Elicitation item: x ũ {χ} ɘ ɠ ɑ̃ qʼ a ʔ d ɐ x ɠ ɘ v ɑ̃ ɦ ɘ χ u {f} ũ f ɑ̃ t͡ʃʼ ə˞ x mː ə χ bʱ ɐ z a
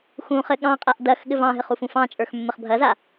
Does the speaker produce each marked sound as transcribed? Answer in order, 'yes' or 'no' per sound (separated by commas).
yes, yes